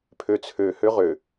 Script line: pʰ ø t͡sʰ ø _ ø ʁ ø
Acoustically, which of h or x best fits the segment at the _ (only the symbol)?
h